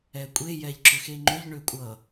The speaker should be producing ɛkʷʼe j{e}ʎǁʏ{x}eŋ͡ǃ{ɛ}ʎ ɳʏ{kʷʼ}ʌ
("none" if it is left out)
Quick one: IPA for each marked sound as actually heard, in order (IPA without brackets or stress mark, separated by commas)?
ɛ, x, ʏ, kʷʼ